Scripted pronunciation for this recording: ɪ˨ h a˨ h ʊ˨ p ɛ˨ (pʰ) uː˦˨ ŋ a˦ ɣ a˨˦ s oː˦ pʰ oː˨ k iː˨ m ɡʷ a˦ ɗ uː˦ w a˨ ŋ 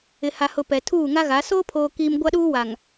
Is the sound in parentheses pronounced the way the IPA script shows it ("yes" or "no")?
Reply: no